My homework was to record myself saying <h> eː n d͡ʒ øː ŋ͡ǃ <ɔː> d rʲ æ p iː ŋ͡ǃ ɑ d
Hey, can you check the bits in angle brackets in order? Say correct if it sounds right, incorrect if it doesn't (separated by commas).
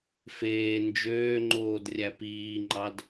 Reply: incorrect, incorrect